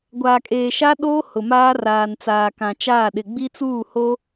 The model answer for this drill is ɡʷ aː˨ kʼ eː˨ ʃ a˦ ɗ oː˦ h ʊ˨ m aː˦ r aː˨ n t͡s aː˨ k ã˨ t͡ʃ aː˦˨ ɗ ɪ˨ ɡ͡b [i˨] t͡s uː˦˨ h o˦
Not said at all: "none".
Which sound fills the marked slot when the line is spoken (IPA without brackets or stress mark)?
i˦